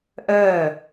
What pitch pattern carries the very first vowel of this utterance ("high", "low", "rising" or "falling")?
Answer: falling